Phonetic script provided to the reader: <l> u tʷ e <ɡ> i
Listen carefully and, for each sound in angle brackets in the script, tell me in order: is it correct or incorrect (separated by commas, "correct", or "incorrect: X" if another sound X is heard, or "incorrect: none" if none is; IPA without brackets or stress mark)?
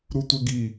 incorrect: ɾ, correct